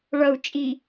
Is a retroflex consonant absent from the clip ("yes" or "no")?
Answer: no